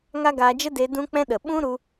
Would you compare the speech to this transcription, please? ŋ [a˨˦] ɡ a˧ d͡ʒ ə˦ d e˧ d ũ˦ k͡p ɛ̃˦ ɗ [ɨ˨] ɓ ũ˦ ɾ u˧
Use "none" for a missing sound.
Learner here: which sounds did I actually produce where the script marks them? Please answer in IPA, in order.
a˦, ə˨

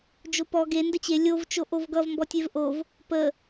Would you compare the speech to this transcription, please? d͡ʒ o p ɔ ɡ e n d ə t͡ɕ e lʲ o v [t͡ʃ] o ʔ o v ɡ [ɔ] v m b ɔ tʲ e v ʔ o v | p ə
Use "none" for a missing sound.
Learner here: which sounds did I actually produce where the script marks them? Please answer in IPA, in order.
t͡ʃ, ʌ

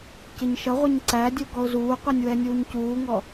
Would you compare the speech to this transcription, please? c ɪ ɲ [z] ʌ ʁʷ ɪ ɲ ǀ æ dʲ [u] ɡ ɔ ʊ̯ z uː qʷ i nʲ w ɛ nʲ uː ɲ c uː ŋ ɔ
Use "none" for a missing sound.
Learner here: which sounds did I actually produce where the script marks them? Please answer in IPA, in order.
ʃ, u

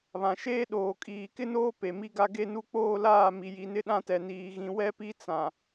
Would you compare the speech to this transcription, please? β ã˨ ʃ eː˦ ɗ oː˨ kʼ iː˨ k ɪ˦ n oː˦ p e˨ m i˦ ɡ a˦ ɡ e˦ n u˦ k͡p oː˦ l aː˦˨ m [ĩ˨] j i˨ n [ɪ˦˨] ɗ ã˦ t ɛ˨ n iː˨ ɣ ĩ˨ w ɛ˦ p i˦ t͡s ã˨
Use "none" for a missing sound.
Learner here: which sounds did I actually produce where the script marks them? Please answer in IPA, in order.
i˨, ɪ˦

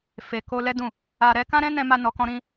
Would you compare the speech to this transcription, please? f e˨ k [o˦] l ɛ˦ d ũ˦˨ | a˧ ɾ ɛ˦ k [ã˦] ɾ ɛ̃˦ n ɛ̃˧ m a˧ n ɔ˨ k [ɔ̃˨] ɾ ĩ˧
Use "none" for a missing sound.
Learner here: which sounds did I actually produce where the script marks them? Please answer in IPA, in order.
o˧, ã˦, ɔ̃˧

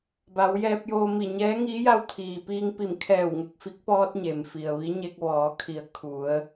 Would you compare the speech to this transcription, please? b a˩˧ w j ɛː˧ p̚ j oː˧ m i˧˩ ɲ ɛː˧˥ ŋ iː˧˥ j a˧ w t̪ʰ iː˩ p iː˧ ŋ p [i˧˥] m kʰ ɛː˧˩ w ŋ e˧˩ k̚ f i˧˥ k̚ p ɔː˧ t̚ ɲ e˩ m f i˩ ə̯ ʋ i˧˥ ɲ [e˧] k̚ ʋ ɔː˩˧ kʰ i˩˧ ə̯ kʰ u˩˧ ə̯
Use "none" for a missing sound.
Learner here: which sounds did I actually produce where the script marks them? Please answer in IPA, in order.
i˧˩, e˧

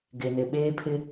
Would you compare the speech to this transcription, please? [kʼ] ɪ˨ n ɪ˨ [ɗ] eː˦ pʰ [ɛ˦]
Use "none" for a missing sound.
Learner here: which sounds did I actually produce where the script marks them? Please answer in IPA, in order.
ɡ, ɓ, ɪ˦

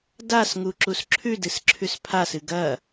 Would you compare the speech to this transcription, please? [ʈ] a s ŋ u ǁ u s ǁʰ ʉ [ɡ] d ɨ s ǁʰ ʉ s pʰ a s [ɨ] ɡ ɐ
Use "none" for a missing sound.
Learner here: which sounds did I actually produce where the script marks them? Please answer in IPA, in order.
d, none, ɨ

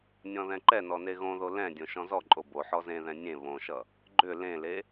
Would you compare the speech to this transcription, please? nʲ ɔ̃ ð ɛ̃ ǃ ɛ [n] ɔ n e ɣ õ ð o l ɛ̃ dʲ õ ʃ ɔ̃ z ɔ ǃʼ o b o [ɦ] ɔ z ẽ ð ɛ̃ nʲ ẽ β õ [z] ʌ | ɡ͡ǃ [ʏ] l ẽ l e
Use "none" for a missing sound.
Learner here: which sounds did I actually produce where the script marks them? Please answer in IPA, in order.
n, ħ, ʃ, ʏ

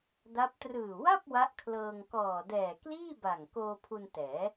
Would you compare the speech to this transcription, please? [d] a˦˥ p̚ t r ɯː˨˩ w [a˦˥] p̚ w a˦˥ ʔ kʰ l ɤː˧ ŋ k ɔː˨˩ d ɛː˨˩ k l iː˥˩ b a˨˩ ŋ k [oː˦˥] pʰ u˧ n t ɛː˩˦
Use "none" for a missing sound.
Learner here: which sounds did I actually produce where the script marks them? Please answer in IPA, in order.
d, a˥˩, oː˧

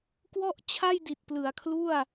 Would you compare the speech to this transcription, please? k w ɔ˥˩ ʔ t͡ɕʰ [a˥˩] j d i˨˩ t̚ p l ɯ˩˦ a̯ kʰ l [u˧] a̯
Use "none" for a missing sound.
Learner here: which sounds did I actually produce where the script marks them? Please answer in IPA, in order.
a˥˩, u˥˩

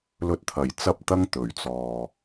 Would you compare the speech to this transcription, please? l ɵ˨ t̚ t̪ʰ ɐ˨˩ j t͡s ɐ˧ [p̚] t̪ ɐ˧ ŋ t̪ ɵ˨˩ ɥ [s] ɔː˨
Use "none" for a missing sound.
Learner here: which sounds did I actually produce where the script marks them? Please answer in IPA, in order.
p̚, t͡s

